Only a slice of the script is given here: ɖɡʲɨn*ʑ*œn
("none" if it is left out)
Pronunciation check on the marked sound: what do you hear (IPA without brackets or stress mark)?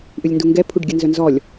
z